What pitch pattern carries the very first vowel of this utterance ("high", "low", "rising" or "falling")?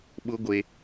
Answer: high